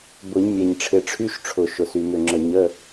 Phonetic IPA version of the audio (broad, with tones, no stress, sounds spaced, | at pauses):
b ʊ˨˩˦ ɲ mʲ ɛ˨˩ ɲ ʈ͡ʂʰ ɪ˨˩˦ ʈ͡ʂʰ y˧˥˧ ʃ ʈ͡ʂʰ ʊ˨˩ ʃ ʊ˨˩ s y˨˩ m ʏ˨˩ ŋ͡ǁ ə˨˩ ɲ ə˧˥˧